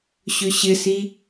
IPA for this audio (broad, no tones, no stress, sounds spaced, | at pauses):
ɕ ʏ ɕ ɪ s i